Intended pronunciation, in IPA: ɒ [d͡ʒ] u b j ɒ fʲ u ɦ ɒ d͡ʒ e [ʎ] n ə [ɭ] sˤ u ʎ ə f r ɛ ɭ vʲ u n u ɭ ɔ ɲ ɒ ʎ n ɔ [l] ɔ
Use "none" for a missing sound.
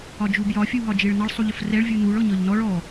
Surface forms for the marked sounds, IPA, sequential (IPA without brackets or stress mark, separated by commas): d͡ʒ, ɭ, ɭ, ɭ